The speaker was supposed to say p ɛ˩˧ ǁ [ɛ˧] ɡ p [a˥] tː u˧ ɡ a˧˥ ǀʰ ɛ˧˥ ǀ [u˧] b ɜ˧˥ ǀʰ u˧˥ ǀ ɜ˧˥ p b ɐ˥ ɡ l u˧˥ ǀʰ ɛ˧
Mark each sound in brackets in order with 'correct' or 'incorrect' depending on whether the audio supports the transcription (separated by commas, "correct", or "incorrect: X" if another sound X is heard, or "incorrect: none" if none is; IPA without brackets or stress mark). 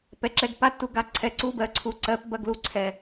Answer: correct, correct, incorrect: u˥